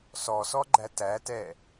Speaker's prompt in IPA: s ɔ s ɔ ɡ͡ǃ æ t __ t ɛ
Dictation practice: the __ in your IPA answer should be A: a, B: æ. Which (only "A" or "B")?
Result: B